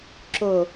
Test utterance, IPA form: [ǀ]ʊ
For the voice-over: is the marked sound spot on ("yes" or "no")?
no